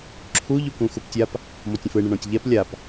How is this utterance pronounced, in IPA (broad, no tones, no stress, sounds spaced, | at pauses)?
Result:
ǁʰ u ʎ u k ũ x u p tʲ a p | m ɔ tʲ ə̃ f ɯ ɳ ə ɳ ɔ̃ tʲ ʎ ɛ p lʲ a p